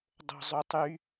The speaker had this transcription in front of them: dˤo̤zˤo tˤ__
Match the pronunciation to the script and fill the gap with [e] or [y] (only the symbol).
y